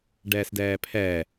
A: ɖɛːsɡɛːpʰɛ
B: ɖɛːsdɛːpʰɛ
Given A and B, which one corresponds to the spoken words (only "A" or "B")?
B